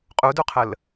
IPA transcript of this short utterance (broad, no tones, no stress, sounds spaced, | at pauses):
qʼ u d u qʰ ə l